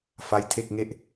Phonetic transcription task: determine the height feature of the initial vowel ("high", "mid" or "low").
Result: low